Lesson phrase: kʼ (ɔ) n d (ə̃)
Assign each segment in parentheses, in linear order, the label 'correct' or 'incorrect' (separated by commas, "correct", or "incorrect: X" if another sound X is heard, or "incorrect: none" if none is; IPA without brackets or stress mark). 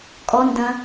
correct, incorrect: ɐ̃